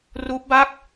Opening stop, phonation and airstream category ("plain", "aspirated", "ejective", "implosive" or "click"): plain